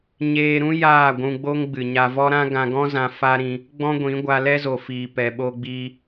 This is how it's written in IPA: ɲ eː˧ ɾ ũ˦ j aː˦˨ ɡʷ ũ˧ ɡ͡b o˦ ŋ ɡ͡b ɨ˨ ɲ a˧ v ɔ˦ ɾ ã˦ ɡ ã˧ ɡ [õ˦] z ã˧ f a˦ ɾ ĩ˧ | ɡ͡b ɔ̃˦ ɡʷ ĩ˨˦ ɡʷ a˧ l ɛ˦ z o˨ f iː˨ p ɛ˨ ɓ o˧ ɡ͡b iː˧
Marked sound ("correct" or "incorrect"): incorrect